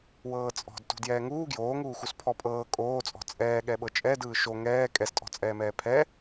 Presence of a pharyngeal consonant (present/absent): absent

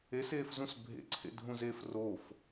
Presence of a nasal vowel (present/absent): present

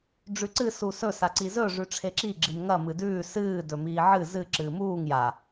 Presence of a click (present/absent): present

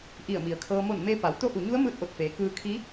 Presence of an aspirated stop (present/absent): present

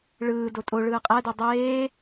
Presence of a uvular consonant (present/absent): present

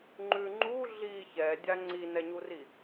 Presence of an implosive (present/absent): absent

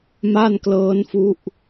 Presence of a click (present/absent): absent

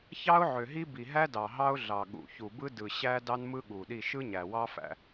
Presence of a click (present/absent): absent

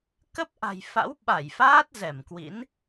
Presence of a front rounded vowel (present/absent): absent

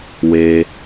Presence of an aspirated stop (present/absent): absent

